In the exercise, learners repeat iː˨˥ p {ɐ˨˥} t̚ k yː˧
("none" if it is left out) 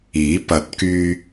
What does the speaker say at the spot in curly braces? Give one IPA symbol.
ɐ˨˥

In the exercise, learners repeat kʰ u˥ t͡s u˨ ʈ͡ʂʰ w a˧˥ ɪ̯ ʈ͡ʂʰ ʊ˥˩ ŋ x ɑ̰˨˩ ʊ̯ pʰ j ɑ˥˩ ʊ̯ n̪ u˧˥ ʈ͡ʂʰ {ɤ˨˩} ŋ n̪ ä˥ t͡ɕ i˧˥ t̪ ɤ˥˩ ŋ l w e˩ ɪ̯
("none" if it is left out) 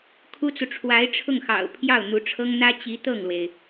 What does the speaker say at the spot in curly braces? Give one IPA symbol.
ɤ˥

